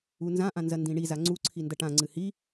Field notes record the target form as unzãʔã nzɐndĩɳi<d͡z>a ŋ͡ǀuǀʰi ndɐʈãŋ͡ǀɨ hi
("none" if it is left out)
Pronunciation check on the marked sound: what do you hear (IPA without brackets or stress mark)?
z